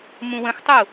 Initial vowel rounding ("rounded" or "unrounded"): rounded